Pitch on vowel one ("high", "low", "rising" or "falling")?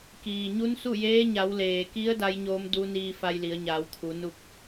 low